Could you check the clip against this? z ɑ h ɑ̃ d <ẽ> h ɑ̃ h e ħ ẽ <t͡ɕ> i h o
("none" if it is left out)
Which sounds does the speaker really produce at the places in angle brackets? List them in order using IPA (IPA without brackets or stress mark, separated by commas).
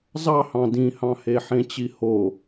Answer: ĩ, t͡ɕ